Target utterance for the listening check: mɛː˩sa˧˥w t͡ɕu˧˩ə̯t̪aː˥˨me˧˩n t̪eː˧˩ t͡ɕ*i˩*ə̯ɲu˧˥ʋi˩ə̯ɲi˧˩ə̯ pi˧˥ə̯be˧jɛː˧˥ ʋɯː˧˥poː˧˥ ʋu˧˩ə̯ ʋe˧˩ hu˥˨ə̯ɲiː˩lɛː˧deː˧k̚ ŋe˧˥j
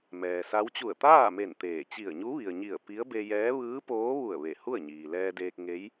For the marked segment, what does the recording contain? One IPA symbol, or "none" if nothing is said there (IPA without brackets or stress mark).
i˧˩